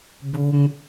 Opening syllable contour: high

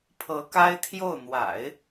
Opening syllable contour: rising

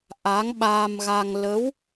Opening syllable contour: rising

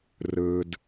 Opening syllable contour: low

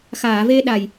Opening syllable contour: low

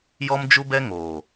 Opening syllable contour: high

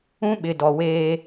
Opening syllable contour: high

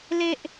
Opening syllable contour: high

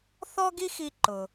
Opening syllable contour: high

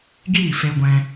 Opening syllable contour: falling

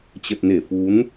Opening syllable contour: low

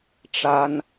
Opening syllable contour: high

